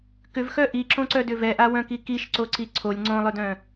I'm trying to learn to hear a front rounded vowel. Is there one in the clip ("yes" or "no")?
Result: yes